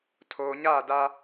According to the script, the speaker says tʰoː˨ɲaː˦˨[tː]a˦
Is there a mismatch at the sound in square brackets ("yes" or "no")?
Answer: yes